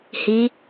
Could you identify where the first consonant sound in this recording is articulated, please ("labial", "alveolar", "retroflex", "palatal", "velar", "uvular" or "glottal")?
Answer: glottal